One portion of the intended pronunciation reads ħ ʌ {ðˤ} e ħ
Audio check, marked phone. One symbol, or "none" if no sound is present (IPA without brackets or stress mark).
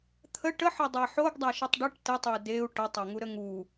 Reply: dˤ